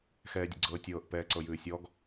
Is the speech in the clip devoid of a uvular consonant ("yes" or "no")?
yes